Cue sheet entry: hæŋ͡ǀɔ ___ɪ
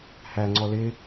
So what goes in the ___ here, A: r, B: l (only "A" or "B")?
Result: B